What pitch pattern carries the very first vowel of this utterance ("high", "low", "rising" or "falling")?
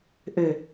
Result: low